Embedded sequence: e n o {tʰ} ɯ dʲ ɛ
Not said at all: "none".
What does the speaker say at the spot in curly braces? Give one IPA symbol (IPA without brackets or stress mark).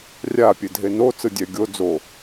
t͡s